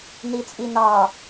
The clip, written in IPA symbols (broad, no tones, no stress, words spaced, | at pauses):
nit͡sʼinɑ